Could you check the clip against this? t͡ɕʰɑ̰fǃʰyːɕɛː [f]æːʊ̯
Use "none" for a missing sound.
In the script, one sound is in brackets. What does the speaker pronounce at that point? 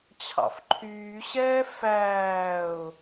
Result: f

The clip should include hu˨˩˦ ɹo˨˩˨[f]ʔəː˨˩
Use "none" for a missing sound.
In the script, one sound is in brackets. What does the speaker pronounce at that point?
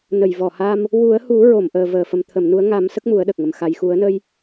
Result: m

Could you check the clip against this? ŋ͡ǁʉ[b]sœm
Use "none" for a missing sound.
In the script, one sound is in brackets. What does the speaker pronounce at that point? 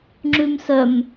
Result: m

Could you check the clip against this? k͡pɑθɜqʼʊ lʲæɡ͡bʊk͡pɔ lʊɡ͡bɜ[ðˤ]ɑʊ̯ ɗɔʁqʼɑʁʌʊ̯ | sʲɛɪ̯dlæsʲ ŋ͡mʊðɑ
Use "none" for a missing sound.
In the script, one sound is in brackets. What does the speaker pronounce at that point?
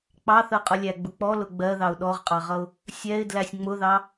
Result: ð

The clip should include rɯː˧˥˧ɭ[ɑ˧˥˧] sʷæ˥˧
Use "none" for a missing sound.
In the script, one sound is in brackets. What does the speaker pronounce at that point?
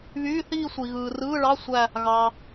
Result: ɑ˧˥˧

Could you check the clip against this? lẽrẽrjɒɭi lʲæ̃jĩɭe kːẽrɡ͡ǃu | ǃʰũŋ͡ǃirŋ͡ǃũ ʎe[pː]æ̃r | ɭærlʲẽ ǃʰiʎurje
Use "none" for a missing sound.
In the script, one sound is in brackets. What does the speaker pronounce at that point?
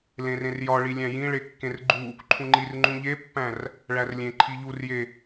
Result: pː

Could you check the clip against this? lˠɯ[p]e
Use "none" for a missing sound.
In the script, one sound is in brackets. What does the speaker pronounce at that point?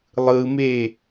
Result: m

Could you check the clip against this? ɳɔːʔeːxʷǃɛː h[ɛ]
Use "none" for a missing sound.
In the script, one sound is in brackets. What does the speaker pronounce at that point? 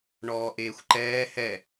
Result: ɛ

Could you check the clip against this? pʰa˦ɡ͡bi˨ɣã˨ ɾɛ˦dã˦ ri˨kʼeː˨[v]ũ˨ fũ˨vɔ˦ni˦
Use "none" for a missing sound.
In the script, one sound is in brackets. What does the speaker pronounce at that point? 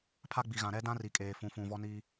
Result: f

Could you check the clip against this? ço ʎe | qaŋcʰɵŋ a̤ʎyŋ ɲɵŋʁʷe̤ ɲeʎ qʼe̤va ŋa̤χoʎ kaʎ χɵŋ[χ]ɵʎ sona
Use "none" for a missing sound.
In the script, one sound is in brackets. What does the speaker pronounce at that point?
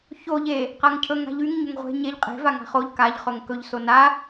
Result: k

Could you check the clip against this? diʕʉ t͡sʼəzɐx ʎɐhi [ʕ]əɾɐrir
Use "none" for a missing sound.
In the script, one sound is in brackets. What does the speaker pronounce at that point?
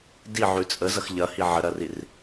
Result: ʕ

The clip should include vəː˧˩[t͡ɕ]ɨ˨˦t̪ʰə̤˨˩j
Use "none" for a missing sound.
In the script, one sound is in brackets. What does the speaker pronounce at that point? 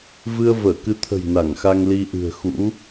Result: k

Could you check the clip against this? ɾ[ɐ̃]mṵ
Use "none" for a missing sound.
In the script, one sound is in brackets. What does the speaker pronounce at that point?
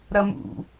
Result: ɐ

